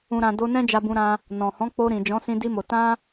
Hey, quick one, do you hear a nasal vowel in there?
yes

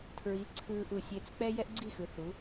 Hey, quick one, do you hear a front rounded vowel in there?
no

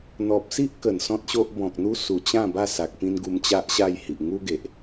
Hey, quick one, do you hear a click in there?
no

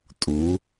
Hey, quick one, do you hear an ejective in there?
yes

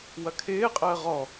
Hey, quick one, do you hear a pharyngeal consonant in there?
no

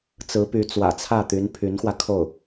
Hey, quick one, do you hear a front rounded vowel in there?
yes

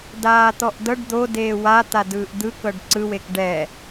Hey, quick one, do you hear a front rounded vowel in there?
no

